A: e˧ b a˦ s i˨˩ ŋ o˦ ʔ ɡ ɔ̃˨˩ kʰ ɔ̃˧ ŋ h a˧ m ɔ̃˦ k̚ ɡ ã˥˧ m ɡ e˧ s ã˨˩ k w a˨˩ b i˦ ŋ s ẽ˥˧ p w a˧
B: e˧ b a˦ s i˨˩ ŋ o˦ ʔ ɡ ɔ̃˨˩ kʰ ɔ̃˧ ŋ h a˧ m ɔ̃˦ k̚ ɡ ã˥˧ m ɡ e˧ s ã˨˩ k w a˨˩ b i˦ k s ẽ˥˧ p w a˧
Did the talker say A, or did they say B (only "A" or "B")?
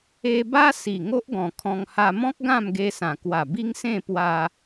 A